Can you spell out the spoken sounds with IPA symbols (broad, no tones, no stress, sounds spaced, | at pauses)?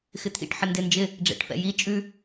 x ɪ t̪ʰ ḭ ʈ ħ ə n d ɪ n d͡ʒ ɪ | ɖ͡ʐ ɛ̰ ʈ f ɛ̰ j i t͡ʃʼ ʉ